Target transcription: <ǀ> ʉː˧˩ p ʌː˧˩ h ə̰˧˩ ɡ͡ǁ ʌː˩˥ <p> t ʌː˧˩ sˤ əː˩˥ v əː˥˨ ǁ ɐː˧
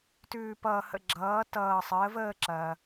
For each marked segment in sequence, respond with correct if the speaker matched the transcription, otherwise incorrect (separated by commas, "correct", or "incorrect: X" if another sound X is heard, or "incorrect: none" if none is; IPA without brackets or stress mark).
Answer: incorrect: t, incorrect: none